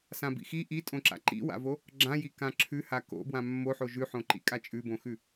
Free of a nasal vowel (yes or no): no